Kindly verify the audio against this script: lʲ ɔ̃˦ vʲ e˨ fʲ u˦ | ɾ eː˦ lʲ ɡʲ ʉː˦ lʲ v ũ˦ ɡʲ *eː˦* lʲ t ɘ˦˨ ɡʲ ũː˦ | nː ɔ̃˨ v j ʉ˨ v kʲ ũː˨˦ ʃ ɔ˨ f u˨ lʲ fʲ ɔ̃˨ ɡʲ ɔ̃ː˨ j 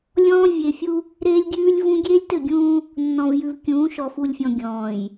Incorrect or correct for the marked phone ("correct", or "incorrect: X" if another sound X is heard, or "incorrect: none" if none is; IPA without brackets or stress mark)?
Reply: correct